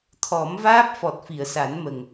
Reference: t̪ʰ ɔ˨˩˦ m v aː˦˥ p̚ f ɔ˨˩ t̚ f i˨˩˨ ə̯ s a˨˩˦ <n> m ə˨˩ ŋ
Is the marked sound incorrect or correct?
correct